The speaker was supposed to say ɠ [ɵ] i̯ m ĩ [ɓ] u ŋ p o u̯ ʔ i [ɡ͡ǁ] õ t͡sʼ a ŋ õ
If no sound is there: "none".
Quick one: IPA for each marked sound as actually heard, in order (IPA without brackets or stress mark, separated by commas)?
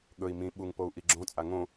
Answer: ɵ, ɓ, ɡ͡ǁ